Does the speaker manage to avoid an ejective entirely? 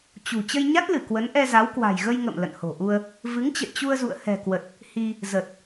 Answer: yes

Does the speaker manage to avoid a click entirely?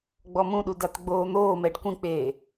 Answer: yes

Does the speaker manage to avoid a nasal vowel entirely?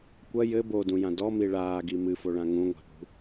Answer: no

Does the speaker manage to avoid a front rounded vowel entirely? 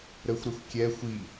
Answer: yes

